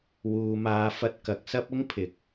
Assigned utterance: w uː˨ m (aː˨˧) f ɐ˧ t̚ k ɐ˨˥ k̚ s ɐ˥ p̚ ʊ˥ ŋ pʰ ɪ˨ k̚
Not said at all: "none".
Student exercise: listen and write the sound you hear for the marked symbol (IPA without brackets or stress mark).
aː˨˧